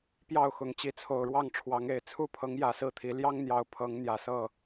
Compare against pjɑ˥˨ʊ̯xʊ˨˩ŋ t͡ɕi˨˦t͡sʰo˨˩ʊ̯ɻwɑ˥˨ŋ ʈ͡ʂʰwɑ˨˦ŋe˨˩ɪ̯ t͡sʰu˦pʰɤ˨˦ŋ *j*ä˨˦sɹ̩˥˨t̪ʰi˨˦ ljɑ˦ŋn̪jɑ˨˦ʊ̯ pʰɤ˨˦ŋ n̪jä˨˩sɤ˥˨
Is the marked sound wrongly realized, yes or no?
no